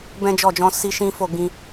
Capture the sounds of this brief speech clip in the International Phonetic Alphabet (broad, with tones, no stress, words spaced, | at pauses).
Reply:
bɛ̃˦d͡ʒɔ˦˨d͡ʒɔ̃˧ si˦ʃĩ˦fo˦˨ ɡĩ˧